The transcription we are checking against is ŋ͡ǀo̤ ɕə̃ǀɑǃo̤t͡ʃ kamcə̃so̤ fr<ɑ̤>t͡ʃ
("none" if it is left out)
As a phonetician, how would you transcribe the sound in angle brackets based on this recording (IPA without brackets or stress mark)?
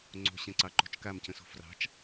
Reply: ɑ̤